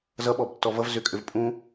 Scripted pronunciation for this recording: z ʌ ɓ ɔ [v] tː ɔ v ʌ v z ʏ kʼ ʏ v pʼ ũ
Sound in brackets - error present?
yes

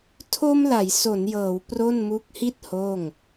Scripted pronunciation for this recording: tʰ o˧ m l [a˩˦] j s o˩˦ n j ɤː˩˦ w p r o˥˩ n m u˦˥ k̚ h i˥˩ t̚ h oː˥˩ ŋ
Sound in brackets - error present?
no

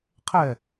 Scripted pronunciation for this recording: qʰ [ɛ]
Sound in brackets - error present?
no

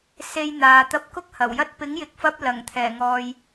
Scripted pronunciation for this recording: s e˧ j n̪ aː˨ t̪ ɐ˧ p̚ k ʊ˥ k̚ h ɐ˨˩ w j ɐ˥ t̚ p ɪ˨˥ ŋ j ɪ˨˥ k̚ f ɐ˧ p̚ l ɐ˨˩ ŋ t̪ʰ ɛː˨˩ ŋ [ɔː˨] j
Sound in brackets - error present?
no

